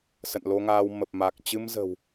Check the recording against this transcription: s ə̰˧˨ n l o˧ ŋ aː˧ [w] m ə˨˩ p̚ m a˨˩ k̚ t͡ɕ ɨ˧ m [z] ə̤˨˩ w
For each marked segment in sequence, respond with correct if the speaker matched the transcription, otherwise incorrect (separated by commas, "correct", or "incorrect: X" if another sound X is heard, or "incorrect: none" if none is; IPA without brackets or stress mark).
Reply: correct, correct